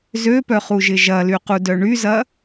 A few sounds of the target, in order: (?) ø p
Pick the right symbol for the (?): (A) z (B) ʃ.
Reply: A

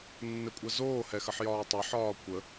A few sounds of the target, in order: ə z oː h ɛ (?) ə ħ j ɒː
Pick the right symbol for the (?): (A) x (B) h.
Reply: A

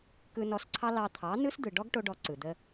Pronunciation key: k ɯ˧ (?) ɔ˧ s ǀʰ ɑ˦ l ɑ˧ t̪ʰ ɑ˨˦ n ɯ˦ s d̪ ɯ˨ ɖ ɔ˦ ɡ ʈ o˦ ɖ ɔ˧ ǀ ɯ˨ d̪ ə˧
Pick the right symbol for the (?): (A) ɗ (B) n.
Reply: B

